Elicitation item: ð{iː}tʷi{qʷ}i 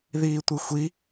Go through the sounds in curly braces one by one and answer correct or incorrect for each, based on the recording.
correct, incorrect: xʷ

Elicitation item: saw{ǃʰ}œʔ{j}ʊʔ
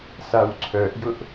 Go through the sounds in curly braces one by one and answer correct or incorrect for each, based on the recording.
incorrect: ǀʰ, correct

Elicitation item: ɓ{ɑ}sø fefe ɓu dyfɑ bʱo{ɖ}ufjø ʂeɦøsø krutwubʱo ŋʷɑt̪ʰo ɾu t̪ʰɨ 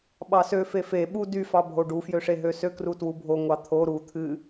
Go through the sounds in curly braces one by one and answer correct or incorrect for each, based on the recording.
correct, correct

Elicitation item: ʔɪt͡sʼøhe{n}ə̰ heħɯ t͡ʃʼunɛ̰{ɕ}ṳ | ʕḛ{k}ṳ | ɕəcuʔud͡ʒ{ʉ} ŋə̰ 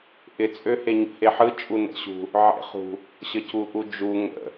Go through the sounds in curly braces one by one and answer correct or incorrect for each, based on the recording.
incorrect: ɲ, correct, incorrect: χ, incorrect: u

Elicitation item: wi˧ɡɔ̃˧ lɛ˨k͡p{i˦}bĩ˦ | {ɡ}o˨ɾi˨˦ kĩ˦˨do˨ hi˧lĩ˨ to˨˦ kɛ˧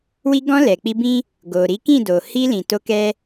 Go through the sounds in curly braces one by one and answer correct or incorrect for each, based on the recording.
incorrect: i˧, correct

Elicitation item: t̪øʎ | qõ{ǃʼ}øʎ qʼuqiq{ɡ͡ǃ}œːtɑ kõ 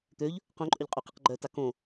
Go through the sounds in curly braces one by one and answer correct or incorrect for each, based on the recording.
correct, correct

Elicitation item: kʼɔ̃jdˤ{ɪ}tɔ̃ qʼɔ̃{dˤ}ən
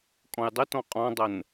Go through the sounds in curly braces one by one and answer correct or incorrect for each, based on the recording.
correct, correct

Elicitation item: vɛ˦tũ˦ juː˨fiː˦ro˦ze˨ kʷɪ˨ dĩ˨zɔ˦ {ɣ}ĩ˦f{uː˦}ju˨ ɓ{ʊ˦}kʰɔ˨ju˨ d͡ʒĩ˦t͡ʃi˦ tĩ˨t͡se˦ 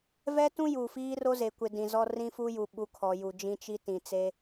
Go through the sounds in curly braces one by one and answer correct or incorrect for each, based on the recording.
incorrect: r, incorrect: u˦, incorrect: u˦

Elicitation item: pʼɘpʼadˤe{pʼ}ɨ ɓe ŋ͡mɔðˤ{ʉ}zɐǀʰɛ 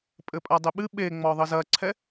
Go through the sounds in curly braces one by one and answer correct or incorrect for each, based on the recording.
incorrect: ɓ, incorrect: ɘ

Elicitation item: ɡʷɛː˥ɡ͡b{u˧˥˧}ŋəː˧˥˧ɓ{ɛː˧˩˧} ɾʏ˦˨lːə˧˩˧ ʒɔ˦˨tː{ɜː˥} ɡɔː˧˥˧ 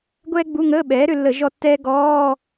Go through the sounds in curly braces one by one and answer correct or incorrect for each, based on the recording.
correct, incorrect: ɛː˩˥, incorrect: ɛː˥

